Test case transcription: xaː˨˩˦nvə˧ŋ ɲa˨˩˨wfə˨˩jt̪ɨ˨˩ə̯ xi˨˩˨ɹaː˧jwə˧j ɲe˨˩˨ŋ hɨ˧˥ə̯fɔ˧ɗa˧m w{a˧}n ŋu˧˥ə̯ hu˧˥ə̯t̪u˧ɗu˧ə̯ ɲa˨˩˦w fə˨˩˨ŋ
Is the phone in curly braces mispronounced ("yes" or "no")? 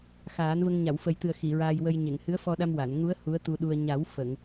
yes